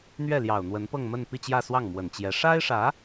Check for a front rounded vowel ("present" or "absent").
absent